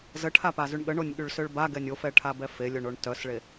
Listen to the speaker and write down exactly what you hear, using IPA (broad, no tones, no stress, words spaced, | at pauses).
zəʈʰapazyɳ ɠəɳonʲ ɠyɭsøɭbaɡɛnʲ ofɛʈʰabɛ felʲoɳoɳ tœsɭe